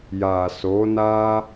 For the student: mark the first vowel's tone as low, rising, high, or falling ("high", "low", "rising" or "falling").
low